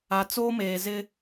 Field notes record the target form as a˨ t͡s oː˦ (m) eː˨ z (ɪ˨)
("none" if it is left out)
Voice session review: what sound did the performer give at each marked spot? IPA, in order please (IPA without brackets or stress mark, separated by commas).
m, ɪ˦